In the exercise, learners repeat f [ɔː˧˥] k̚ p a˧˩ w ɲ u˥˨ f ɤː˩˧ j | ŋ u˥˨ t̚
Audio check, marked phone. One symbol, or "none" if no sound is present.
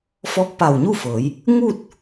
ɔː˧˥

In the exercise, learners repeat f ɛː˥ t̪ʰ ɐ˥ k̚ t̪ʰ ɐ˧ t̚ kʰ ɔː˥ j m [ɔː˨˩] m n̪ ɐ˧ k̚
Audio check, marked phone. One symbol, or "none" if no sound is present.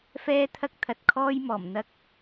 ɔː˨˩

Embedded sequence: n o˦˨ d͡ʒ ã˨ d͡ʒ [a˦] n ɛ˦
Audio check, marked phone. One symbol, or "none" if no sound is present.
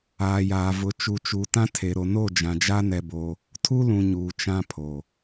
a˦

